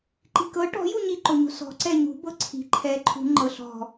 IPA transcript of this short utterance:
ǃ i̤ k ɤ ʈ ɔ̤ j u ɲ i ǃ o ɲ o̤ s ɔ̤ ǀ ɛ ɲ ṳ b ɤ ǀʰ i̤ ǃʰ ɛ ǃʰ ṳ ŋ͡ǃ ɤ ɬ ɔ̤

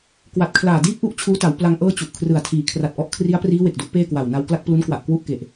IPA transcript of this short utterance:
k w a˨˩ t̚ kʰ l aː˨˩ d iː˥˩ p̚ ʔ u˥˩ ʔ t͡ɕʰ uː˦˥ t a˩˦ w p l a˧ ŋ ʔ ɤː˥˩ t͡ɕ u˨˩ ʔ kʰ r ɯ˨˩ a̯ tʰ iː˩˦ kʰ r a˨˩ t̚ ʔ ɔ˦˥ ʔ kʰ r i˦˥ a̯ p r iː˦˥ w e˨˩ k̚ d u˦˥ ʔ p eː˥˩ k w a˨˩ w n a˧ w k l a˥˩ k̚ p l u˦˥ n k w a˨˩ ʔ k w u˥˩ ʔ k e˨˩ ʔ

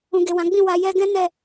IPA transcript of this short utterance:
ũ˨ ɡ e˨ w ã˨˦ ɡ͡b ĩ˦˨ w a˨ j ɛ˧ ɡ ɛ̃˦ n ɛ˦˨

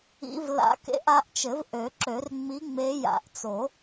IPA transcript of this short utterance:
ḭ˧˥ v l a̰˧˥ k ḛ˧˥ ʔ a˧˥ ʔ t͡ʃ ɘ˨˩˦ v ʔ ø˨˩˦ ǁ ø˨˩˦ r ŋ͡m i˧˥ ŋ͡m e˧˥ j a̰˨˩˦ ʔ t͡s o˨˩˦

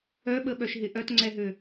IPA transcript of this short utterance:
œ ɓ ə ɓ œ ʃ ɦ ɪ ʔ œ t ŋ͡ǀ ɛ ɦ ø

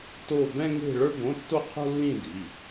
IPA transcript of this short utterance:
t o˥˧ b ɛ̃˥ ŋ e̤˥˧ ɭ ə˞˥ b õ˧˥˧ tː o˥˧ qʰ o̤˥ lː ĩ˥˧ d i˩˧˩

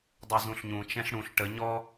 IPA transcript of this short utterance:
dˤ u z ũ ɬ ɲ ũ t͡ʃ ɛ̃ ɬ ɽ ũ ɬ ʈ ə ɲ ɔ

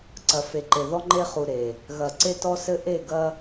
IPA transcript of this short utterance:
ǀ ɐ˨ f e˨ ǃ e˨ ð ɔ˦ ŋ͡ǃ e˦ χ u˨ ɾ e˨ | ɣ ɐ˨ ǀ e˦ t ɔ˦ s ɘ˦ ʔ e˦˨ ɡ ɐ˦

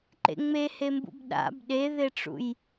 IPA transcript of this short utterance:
ǃ ḛ ŋ͡m e h e m b ṵ b ɗ a̰ b ɗ e ð e ʈ͡ʂ ṵ j

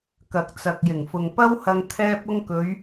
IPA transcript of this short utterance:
k ɐ˨ k̚ t͡s ɐ˨ k̚ j ɪ˨˩ ŋ f ʊ˨ ŋ p ɐ˥ w h ɐ˧ ŋ t̪ʰ ɛː˧ p̚ ʊ˧ ŋ k ɵ˨˧ ɥ

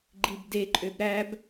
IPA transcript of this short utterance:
ɡ͡ǃ i b d e ǃʼ ø b ɾ æ b

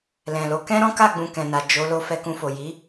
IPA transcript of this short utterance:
l ɛ̃˨ l o˨˦ k ɛ̃˦ ɾ ɔ̃˦ k a˦˨ ɡ͡b ũ˨ k ɛ̃˨ n a˨ d͡ʒ o˨˦ l o˧ f ɛ˧ k ũ˧ f o˨ j i˨˦

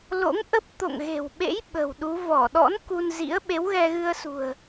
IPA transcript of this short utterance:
l o̰˧˥ ŋ ʔ ə˦˥ p̚ t̪ o̰˧˨ ŋ ɣ e̤˨˩ w ɓ ḛ˧˥ j ɓ ə̤˨˩ w ɗ u˨˦ v ɔ˧˩ ɗ ɔ̰˧˥ n k u˧ n z ḭ˧˥ ə̯ ɓ e˨˦ w ɣ ɛ˧ ɣ ɨ˧ ə̯ s ṳ˨˩ ə̯

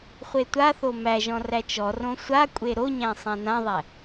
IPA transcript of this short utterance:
χʷ e tʷ a θ o m æ ʒ ɔ̃ r æ t͡ʃ ɔ r õ sʷ a kʷʼ e ɾ o ɲ æ̃ sˤ æ̃ n ã ðˤ æ

